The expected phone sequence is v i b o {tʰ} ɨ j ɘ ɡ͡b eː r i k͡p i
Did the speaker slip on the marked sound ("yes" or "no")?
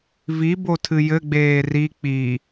no